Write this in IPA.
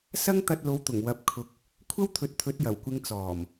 sɐ˥ŋt̪ɐ˧t̚lo˨˧wt̪ʊ˨˩ŋ wɐ˧p̚kʰʊ˧k̚ | kʷʰɐ˥wt̪ʰɵ˨˥t̚ t̪ʰɵ˨˥t̚jɐ˨˩wkʷɪ˧ŋ t͡sɔː˨˩m

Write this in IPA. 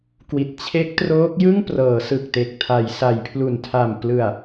kwi˨˩t̚t͡ɕʰe˦˥k̚troː˦˥k̚jɯ˥˩ŋ prɤː˩˦sɯ˨˩k̚te˨˩k̚ tʰa˩˦jsa˩˦jpʰlu˨˩n tʰa˨˩m plɯ˨˩a̯

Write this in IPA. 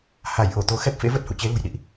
ha˧˩j ʔo˧˩t̪o˨˦ xɛ˦˥p̚fḛ˧˥və˦˥t̚ hṵ˧˨t͡ɕe˨˦lṳ˨˩j ɗḭ˧˨ʔ

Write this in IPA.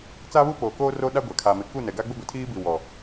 t͡saː˦βu˦poː˨koː˦ ro˦ɗa˦ɡʷa˨ kʰa˨mɪ˨ ku˦˨nɛ˨ɡa˦ɡ͡bʊ˦ ɡʷe˨tʰiː˦bi˨ wɔ˨

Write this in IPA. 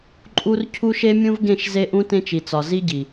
ǃʼu˦rcʰu˦ʃe˦mʲũ˦v ɡẽ˦˨ʃze˦ʔũ˦ tẽ˦t͡ʃi˨t͡sɒ˨ zi˦ɟi˨

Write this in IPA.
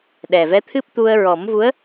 ɗɛ˨˩vɛ˧˥t̪ʰɨ˦˥p̚ t̪u˧ə̯ ɹɔ˨˩˦mvu˧˥ə̯

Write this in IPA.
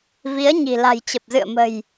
vi˨˦ə̯ ɲi̤˨˩ la̤˨˩jt͡ɕə˨˩p̚zɨ̰˧˨ə̯mə̤˨˩j

